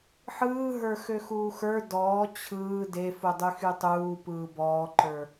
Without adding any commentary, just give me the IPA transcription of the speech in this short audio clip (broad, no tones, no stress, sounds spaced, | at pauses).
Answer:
ħ ɯː ɦ ə˞ x ø x uː x ə˞ d ɔː t͡ɕʰ ɯː d e f u dˤ y x y tˤ uː p ɯː b ɔː ǃ ə˞